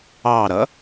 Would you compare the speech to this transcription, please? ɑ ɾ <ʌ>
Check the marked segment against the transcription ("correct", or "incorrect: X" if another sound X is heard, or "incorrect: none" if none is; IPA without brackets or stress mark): correct